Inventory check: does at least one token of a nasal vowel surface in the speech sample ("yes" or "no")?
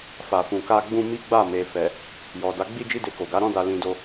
yes